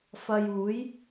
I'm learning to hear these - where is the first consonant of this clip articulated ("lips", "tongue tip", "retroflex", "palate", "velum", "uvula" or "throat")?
lips